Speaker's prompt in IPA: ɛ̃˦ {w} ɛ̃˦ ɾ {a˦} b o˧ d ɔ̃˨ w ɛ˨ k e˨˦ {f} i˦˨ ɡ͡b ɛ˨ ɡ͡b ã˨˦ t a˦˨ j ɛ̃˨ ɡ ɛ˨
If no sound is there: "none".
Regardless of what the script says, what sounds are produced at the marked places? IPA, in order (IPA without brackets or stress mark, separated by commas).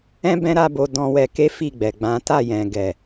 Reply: b, a˦, f